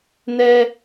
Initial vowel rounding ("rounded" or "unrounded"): unrounded